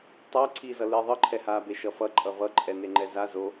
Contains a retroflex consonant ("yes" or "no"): no